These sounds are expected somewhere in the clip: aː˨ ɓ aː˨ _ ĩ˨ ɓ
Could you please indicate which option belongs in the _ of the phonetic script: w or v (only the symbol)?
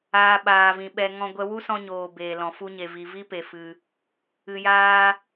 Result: v